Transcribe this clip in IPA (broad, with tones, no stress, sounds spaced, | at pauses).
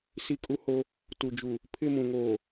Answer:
s i˦ kʼ u˦ h o˦ | t u˨ d͡ʒ u˨ | pʰ ɪ˦˨ m ũ˨ ŋ oː˨